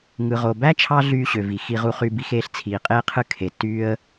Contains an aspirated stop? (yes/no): yes